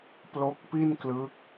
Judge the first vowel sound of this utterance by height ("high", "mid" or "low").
mid